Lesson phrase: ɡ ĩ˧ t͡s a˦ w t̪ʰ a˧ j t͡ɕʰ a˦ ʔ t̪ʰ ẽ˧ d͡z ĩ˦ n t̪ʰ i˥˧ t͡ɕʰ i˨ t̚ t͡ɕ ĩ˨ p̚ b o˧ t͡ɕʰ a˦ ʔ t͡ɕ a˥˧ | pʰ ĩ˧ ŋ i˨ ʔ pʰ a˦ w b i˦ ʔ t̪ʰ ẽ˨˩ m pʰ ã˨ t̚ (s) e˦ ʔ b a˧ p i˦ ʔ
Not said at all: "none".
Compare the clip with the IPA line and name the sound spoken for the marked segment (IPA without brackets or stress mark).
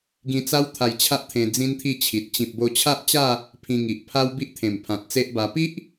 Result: t͡s